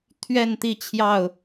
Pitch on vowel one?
falling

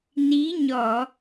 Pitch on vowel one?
rising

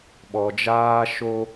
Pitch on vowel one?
low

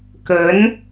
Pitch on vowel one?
rising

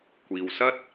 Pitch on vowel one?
low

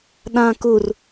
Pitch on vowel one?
low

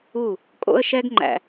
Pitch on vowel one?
falling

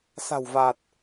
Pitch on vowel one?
low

